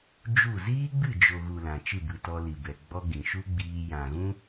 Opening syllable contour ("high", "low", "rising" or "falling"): falling